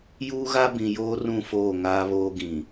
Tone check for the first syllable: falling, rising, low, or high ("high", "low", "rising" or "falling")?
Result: high